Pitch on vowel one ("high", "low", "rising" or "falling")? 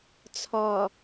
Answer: low